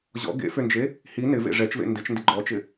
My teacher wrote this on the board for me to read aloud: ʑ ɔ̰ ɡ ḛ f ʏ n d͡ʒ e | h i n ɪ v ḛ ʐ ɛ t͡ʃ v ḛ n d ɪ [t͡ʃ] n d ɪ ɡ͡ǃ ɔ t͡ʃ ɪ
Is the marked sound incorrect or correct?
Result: correct